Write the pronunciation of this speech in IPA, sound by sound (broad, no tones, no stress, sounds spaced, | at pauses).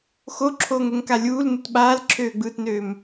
x o ǁʰ oː ŋ ɛ ŋ k a lʲ uː l n ɯ t ɓ aː l ǁʰ øː ɡ͡b ɯː t n øː m